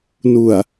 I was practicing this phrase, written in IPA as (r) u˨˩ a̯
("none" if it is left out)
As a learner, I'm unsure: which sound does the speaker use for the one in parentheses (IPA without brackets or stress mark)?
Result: n